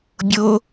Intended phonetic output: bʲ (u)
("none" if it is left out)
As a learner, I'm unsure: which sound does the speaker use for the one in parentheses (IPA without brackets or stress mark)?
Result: o